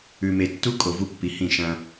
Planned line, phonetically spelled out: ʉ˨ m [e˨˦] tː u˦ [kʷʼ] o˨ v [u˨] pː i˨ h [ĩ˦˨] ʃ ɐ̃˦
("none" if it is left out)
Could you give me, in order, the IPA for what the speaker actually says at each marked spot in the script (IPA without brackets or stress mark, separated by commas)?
e˨, kʼ, u˦, ĩ˦˨